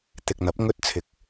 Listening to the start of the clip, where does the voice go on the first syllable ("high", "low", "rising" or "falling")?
low